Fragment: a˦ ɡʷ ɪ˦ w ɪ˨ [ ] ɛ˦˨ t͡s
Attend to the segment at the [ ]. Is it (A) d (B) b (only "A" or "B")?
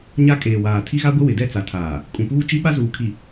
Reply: A